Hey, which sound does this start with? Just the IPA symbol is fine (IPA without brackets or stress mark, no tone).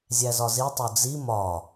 zʲ